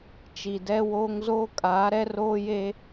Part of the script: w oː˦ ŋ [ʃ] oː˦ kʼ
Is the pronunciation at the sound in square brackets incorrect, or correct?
incorrect: z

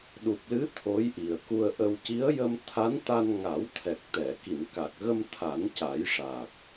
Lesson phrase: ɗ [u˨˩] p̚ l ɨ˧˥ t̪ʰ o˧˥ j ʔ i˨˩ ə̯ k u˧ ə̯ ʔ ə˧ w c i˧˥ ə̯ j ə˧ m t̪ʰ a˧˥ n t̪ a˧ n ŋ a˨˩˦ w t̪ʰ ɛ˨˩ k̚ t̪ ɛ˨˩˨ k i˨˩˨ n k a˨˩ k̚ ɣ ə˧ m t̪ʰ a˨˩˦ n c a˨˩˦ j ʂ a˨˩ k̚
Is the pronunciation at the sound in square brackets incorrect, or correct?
correct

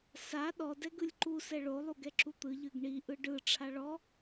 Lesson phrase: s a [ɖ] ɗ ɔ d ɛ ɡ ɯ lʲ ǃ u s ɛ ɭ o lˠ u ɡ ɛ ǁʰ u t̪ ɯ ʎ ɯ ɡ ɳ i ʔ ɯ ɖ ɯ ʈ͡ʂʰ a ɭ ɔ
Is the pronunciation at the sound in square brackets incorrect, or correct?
incorrect: none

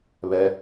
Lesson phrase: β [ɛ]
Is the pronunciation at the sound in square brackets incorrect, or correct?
correct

